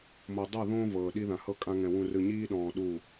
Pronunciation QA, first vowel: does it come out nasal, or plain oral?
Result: oral